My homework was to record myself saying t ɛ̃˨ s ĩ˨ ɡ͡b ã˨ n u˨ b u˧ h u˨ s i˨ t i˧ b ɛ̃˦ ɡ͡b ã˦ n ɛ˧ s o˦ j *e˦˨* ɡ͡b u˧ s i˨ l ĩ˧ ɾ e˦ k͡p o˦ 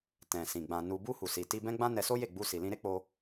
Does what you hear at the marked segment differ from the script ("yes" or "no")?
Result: no